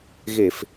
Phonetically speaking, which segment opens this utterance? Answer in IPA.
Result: ɣ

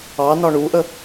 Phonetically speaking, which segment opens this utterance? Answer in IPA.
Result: ɑ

